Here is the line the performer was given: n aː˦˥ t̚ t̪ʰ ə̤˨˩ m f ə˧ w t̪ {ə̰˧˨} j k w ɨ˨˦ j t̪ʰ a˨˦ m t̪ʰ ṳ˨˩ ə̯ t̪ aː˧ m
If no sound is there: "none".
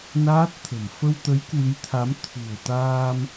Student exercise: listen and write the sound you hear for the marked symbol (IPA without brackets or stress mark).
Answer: ə˨˦